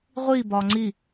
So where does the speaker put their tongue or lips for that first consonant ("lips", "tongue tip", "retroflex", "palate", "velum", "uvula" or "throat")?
uvula